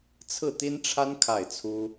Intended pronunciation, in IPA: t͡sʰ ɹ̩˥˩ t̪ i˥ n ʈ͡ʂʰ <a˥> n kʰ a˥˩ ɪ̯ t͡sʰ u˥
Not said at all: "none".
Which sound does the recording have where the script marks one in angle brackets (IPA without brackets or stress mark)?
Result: a˥